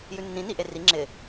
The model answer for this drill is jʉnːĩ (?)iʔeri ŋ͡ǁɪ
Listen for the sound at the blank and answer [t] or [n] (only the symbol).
n